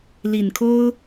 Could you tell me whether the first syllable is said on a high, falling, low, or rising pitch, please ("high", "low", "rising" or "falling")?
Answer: low